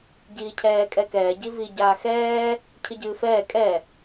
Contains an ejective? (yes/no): yes